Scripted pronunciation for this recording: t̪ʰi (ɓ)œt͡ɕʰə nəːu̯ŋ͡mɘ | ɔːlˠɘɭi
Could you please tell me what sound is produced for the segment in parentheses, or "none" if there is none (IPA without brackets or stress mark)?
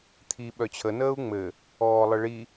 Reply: ɓ